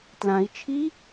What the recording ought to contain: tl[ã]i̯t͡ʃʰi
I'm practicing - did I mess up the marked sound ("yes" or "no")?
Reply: no